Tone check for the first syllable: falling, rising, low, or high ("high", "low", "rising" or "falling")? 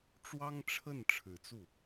high